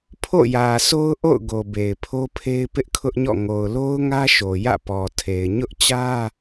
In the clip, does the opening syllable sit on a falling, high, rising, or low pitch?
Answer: falling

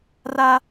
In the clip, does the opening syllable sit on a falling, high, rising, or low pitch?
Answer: high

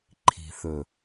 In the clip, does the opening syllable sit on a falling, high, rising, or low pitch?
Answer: low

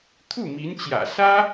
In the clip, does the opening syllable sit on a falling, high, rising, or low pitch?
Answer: falling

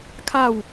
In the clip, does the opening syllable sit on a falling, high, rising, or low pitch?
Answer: falling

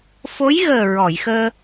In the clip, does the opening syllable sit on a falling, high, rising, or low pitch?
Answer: rising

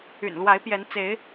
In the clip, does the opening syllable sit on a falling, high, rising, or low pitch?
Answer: low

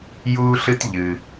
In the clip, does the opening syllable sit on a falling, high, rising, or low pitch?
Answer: high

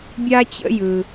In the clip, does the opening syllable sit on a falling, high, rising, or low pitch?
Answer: high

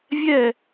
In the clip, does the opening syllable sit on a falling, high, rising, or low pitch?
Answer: falling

